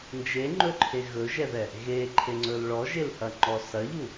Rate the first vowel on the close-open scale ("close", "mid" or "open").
mid